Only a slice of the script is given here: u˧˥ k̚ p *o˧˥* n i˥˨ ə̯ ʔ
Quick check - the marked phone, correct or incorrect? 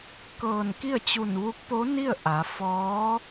correct